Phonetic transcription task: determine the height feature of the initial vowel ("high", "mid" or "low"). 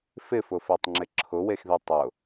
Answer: high